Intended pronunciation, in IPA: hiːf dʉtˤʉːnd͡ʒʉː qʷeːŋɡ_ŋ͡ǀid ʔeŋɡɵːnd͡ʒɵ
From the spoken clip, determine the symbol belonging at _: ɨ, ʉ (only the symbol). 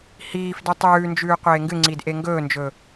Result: ɨ